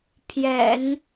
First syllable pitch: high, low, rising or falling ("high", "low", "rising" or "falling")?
low